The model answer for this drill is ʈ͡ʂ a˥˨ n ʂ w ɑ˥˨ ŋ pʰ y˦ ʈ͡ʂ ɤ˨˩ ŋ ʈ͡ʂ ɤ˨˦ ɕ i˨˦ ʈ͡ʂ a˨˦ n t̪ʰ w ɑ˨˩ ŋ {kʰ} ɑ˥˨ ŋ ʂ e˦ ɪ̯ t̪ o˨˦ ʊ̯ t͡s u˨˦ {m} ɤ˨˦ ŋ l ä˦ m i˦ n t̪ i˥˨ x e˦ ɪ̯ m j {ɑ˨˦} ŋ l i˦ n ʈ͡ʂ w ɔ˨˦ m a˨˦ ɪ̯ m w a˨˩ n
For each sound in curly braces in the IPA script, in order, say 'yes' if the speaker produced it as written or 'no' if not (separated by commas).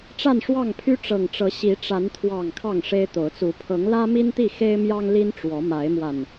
yes, no, no